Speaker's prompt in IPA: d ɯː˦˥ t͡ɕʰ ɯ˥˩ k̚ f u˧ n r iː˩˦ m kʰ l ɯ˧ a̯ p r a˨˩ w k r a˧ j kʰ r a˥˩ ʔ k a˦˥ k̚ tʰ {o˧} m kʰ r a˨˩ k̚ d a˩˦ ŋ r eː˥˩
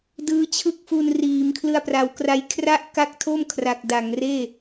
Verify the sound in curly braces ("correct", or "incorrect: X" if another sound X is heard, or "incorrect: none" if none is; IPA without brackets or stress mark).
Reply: incorrect: o˥˩